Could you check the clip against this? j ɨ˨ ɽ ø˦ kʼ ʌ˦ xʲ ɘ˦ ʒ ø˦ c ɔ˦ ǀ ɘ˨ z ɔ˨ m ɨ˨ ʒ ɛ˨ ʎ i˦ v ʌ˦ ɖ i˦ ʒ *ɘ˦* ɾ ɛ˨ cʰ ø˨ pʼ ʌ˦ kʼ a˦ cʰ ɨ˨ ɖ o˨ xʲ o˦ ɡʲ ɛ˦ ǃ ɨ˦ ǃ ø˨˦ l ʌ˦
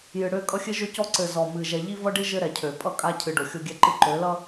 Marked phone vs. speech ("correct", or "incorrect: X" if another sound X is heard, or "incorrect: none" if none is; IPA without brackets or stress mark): correct